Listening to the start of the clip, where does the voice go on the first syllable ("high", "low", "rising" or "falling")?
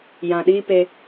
low